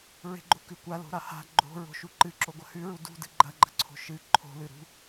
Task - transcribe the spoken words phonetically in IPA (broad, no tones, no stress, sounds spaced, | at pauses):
ɹ e̤ ɡ͡ǃ o k ʉ kʷ a l o̤ ɾ a h a̤ ɡ͡ǃ o̤ ɹ o̤ ʃ u ǃ ɨ ǁ o ɡʷ ɐ h ʉ ɹ u d ṳ d ɨ ɡ͡ǃ ɐ ɡ͡ǃ ɐ ǀʰ o̤ ʃ ɨ ǃʰ o̤ l ɨ ɾ ṳ